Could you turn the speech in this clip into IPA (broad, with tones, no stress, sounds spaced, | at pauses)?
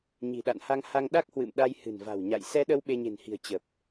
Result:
ɲ i̤˨˩ ɗ a̰˧˨ n h a˧ ŋ h a˧ ŋ ɗ a˦˥ k̚ h w ɨ̰˧˨ m ɗ a˧ j h ɨ̤˨˩ n v a̤˨˩ w ɲ a̰˧˨ j s ɛ˧ ɗ ə˧ w ɓ e˧ ɲ e̤˨˩ n h i̤˨˩ ə̯ t͡ɕ ə˨˩ p̚